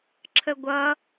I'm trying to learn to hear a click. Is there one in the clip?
yes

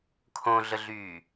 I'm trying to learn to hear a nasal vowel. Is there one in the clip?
yes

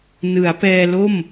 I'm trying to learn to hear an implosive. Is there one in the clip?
no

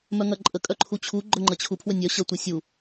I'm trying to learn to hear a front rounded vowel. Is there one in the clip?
yes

